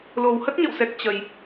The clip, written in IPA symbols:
l o˨˩ w h ə˦˥ t̚ ɲ ə̰˧˨ w s ɛ˨˩ k̚ t͡ɕ ə˨˩ j

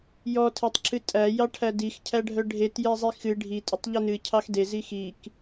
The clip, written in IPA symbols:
j ɔ tʰ e tˤ ǁʰ ɨ tʼ æ j ɑ ʈʰ æ d i x cʰ æ ɖʱ œ ɖʱ e t j ɛ zˤ i x ɨ ɖʱ i tʼ ə tˤ ʎ ɛ n ɨ cʰ ɑ x d e z i x i k

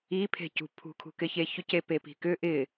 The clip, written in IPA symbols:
i pʰ e̤ c ṳ pʰ ṳ kʰ ṳ k ɪ ç e ç ʏ c e p e p i̤ k ʏ ʔ ɪ

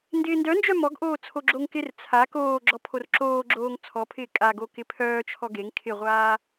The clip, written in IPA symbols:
n d ɪː n d œ n d͡ʒ œ m ɔ ɡ ʔ oː t͡sʰ o ɡ͡ǁ o ŋ k ɪ r t͡sʰ a k oː ɡ͡ǁ ɔ pʰ o r ǁ oː ɡ͡ǁ oː ŋ t͡sʰ ɔ pʰ ɪː kʼ a ɡ o k ɪ pʰ œː t͡ʃʰ ɔ ɡ e ŋ kʰ ɪ ʁʷ aː

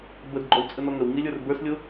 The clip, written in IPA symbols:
b ə d ɡ͡ǃ ɔ w t͡sʼ ə n ɔ ŋ ə w ŋ i lʲ ə˞ r b ə˞ s lʲ ʊ

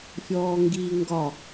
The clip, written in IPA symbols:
fʲ ɔː ŋ ɡ iː ŋ ɡ ɒ

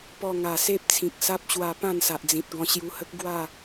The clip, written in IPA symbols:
p ɔ˧ ŋ a˨˩ s e˦ p̚ t͡sʰ ĩ˨ k̚ s a˦ p̚ ɕ w a˧ p ã˥˧ n s a˨ ʔ d͡z ĩ˨ t̚ ɡ ɔ̃˧ ɕ j u˧ h ə˦ k̚ ɡ w a˥˧

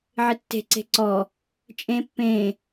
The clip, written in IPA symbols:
ʕ ɪ tː e̤ ǀ e̤ ǀ ɔ | t͡ʃʼ ẽ pː ẽ

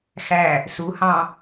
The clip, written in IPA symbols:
x æ | s u h ɑ̃

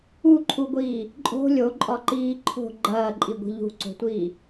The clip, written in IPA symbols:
u ǃʰ u ɡʷ iː | ǃʼ o̤ lʲ o ǃʼ ɒ ǃ iː ǃʰ o̤ ɡ͡ǃ ɐː ǃʼ i ɡʷ i̤ ʎ ṳ ǀ o̤ tʷ iː

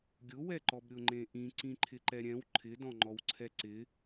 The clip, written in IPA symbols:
ɡʲ ʊ w ɛ ǃ ɔ b ɾʲ ʊ ŋ͡ǃ ẽ ʔ ĩ ǀ ĩ ǃʰ ɪ ǃ ɛ ɾʲ ɛ̃ w ǃʰ ɪ d ɔ̃ ŋ͡ǃ ɔ w ǀʰ ɛ ǀ ɪ

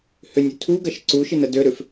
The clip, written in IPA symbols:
h ʏ nʲ ʏ tʰ u ɡ ɐ ʃ ǀ u ʃ ɪ n ə d ø ɾ ʏ f

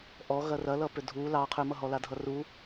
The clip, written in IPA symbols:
ʔ ɔ ɣ ɐ r ɐ l ʌ p ʏ dʱ u l ɑ qʰ ʏ m ʌ ɦ ɔ l a dʱ ʌ r u

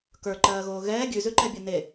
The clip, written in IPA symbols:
k ə˞ ǃ ɜː ɣ oː ɣ ɛː ɡʲ ʉ z ʉ ǃ ɛ bʲ ɜ n e

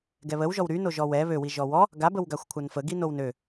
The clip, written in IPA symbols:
ɡ ɛ β ə w ʒ ɔ w ɾ y n o ʒ ɔ w ɛ β ø w i ʒ ɔ w ɔ | ɡ a b ə w ɡ a xʷ kʷʰ a n f ə ɡ i n o w n ø

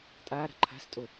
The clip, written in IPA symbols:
tʼ aː ɾ a̤ ǃʰ a̤ s tʼ o

